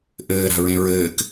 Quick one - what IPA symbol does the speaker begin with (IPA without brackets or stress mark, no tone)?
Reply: ʔ